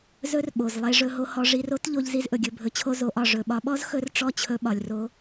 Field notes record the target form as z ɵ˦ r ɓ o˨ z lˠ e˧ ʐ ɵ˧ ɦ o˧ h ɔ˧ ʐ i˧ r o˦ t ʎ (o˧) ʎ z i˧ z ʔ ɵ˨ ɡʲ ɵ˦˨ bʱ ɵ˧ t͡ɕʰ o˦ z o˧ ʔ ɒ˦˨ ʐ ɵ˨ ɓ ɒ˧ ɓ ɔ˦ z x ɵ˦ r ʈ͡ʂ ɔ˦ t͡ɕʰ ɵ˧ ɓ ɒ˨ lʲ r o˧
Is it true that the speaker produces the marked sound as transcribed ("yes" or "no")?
yes